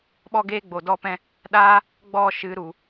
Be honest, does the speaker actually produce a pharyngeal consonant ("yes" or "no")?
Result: no